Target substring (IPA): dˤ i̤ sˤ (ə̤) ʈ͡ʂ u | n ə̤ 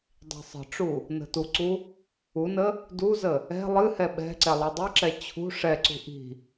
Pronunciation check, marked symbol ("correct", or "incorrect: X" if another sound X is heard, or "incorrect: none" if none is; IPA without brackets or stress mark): correct